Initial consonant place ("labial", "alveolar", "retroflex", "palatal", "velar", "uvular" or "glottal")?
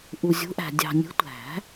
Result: glottal